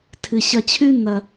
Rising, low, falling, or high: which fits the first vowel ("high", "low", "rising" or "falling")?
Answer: low